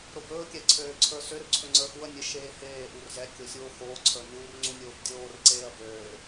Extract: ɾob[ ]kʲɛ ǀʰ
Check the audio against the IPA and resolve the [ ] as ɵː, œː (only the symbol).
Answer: ɵː